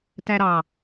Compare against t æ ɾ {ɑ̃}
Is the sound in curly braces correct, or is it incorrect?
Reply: incorrect: ɑ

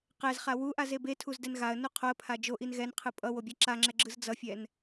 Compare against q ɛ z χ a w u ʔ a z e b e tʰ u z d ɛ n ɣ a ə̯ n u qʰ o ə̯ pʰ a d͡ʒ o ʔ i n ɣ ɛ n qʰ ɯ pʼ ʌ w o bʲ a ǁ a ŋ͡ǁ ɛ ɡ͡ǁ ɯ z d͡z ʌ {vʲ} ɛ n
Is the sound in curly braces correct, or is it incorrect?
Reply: incorrect: fʲ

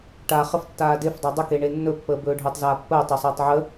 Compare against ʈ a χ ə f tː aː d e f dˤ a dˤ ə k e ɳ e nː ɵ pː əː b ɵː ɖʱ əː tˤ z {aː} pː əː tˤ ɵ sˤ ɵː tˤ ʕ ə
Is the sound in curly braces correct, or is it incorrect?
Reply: correct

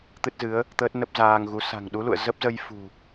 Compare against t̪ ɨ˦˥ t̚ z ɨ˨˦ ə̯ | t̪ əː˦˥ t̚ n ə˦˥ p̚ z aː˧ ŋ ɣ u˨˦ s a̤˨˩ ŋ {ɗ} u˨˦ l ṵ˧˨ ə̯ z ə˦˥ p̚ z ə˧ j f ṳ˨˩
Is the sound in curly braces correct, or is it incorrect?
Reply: correct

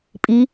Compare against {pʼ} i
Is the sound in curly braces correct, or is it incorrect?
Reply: correct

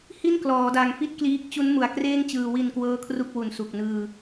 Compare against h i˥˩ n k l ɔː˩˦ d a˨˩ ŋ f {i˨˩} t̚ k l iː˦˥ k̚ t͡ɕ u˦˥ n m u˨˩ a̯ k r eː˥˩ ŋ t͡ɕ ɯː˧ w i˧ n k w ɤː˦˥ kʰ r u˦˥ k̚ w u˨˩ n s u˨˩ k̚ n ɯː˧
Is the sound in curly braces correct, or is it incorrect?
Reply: incorrect: i˥˩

